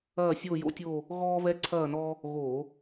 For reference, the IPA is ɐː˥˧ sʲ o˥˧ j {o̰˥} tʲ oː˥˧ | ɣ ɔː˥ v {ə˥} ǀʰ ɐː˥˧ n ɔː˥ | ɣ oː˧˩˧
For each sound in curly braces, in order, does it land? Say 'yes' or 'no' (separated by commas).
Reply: yes, no